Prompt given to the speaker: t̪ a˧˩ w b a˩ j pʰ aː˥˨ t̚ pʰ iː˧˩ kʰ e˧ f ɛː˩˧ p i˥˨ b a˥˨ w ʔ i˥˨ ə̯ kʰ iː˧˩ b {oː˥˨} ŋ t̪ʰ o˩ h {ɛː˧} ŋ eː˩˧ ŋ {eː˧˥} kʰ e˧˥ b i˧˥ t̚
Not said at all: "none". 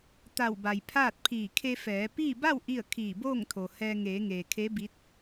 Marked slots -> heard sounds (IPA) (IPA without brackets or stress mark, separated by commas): oː˥˨, ɛː˧, eː˩